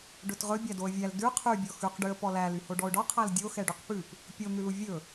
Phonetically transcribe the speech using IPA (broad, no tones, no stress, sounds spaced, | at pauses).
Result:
ɖ ɵ t ʁ ɵ bʲ æ d o ə̯ vʲ æ l d ʉ qʰ y bʲ ɔ x ʉ q ɖ y ə̯ p ɔ l æ l y h o ɖ ɔ ʊ̯ ɖ ɔ qʰ æ l dʲ o x ɛ ɖ y q p ʉ p | pʲ o n̪ ʉ l u vʲ ɵ